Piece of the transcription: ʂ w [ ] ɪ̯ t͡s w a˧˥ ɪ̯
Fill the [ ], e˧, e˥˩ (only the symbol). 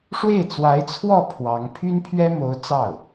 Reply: e˥˩